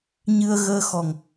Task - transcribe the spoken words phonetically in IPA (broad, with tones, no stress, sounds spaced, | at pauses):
ɲ ɨ˧ ə̯ ɣ əː˧ x ɔ˨˩ ŋ